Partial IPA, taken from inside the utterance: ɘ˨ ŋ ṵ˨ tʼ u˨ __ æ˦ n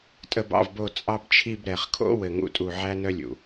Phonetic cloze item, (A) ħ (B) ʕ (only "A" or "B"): B